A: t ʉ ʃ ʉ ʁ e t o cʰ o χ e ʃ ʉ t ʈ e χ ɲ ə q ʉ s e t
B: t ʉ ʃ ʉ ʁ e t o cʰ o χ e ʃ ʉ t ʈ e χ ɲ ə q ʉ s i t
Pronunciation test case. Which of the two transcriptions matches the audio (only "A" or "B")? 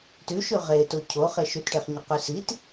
B